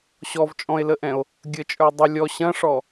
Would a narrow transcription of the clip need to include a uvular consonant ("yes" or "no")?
no